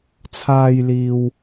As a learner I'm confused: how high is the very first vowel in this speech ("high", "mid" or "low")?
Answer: low